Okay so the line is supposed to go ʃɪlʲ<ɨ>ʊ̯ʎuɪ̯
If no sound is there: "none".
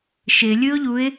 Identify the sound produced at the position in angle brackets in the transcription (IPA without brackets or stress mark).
ɨ